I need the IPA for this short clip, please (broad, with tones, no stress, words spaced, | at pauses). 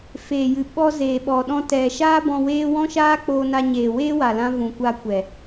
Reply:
feː˨jɨ˨ ɓɔ˧ zeː˨ɓɔ˨ɗɔ̃˧ tɛ˨ʃaː˦bɔ̃˧ weː˦ wɔ̃˦ʃaː˦ k͡poː˧na˧ɲeː˨ weː˦wa˨lã˧ vũ˨kʷa˧kʷɛ˨